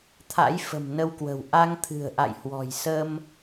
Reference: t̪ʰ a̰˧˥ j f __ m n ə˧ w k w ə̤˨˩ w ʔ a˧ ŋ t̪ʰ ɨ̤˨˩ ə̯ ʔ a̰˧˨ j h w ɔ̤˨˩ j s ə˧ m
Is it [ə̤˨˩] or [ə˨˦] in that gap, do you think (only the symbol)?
ə̤˨˩